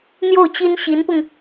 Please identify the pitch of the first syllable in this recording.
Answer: falling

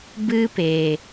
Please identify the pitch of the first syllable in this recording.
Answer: high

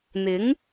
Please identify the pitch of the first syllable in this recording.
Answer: rising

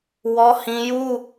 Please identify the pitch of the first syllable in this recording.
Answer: high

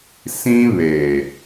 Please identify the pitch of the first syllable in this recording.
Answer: high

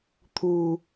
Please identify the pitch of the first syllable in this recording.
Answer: low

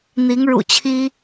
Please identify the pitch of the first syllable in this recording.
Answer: rising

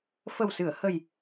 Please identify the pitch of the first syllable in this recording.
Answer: low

